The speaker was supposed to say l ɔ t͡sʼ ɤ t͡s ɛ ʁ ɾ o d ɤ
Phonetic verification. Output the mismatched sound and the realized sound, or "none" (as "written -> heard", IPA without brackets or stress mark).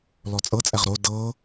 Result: t͡s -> t͡sʼ